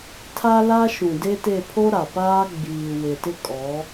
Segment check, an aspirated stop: present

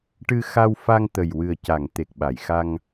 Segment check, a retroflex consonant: present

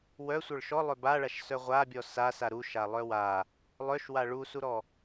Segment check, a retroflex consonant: present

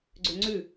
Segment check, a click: present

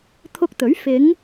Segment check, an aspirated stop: present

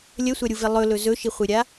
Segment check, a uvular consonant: present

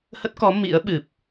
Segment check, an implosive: present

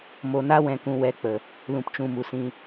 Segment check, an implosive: absent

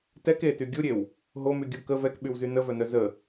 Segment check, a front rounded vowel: present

